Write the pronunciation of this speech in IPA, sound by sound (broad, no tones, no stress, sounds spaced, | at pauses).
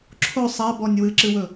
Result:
ǁʰ o sˤ a b ɔ nʲ w ɨ ǁ ɨ w ɵ